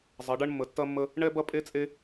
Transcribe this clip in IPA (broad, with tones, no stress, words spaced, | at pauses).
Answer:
zˤɐ˧˥ɖɐ˥ɳ mːə˧˥tːɐ˥mːə˥ | ɳɛ˥bɐ˥pʼe˥t͡sʼe˥